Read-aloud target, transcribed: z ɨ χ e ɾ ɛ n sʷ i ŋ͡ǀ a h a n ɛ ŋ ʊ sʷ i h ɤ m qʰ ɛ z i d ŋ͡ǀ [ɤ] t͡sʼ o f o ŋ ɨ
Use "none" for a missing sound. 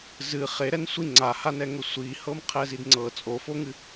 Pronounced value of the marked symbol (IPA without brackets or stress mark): ɤ